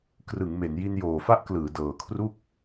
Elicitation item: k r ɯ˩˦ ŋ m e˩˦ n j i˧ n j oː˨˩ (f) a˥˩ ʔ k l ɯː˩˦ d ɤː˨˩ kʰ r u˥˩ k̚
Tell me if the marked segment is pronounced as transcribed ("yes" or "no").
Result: yes